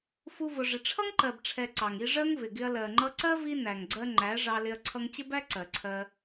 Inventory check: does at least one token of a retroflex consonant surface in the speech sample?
yes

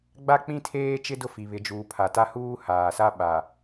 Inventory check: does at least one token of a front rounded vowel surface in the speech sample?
no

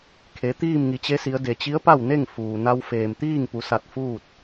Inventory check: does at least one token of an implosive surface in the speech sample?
no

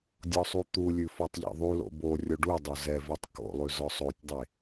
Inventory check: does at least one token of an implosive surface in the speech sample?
no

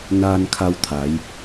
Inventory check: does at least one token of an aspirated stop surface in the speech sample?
yes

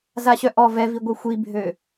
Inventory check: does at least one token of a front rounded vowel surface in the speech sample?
yes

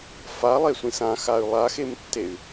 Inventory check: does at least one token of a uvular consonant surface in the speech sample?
no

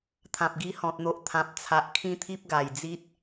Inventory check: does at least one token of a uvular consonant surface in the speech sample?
no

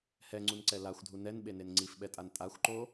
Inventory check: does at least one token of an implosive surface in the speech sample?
yes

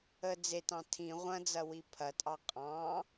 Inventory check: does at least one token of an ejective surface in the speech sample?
yes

